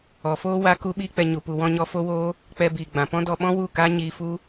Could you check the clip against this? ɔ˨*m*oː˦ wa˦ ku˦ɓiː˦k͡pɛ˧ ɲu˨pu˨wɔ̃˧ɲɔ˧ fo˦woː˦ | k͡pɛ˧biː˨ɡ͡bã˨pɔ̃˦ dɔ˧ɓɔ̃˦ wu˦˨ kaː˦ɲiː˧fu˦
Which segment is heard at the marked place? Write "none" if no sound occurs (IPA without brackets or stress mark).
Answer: f